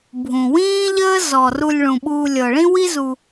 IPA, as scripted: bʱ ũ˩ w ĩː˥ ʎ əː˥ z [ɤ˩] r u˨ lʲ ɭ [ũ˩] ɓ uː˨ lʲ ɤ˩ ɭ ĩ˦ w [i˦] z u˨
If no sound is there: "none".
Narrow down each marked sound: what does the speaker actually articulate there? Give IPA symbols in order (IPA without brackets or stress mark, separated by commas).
ɔ˩, ũ˩, i˦